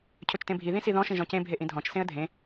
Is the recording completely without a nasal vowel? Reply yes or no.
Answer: no